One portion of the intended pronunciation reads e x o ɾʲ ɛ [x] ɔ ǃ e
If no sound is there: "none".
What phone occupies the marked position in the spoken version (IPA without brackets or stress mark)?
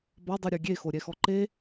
x